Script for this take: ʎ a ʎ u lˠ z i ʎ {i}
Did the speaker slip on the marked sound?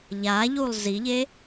yes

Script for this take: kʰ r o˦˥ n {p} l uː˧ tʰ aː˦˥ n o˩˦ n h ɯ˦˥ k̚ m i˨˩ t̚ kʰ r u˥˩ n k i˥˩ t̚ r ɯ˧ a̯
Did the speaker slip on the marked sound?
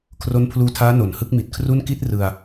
yes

